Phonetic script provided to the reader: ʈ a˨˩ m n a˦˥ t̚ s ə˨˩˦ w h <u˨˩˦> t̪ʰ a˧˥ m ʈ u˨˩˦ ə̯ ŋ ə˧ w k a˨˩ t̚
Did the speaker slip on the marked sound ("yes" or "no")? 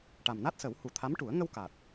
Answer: no